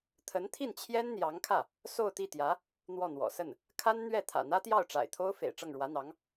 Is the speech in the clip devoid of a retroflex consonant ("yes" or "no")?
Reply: no